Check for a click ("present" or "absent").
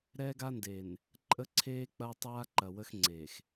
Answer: present